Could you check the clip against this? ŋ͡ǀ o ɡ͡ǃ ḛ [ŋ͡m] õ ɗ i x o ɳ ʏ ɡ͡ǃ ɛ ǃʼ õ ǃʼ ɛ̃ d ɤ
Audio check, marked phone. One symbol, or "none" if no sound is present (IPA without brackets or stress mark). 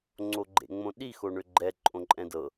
ŋ͡m